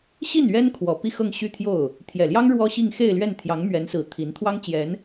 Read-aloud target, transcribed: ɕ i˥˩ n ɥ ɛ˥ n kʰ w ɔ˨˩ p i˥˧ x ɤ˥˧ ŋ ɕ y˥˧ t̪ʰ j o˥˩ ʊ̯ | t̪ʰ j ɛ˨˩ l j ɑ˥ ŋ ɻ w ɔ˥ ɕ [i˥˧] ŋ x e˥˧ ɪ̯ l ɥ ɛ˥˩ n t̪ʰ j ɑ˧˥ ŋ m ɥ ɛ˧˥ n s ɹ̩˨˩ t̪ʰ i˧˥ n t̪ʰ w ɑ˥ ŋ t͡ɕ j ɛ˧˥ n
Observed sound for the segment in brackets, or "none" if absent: i˥˧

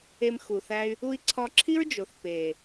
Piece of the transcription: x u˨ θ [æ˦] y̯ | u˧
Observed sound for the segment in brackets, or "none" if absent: æ˦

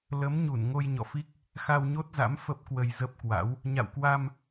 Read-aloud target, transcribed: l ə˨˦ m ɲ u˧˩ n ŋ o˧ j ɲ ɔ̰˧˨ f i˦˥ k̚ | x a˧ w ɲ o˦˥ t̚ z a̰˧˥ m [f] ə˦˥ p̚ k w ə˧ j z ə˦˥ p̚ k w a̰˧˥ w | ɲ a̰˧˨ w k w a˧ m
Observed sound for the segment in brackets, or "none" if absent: f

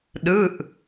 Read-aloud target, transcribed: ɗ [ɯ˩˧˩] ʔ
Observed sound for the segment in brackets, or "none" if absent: ɯ˩˧˩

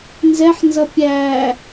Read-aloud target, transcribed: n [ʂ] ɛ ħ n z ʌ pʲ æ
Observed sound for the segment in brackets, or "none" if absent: z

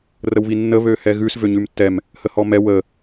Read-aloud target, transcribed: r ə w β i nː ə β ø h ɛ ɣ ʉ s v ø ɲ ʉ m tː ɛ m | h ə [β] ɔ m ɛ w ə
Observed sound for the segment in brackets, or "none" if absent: h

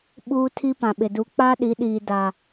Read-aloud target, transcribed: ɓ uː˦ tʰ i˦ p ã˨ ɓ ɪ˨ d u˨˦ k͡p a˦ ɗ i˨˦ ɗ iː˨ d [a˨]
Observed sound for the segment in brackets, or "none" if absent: a˨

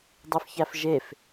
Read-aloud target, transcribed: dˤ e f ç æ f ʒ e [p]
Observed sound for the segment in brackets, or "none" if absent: f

